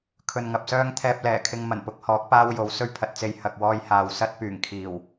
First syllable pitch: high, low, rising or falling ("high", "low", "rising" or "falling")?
low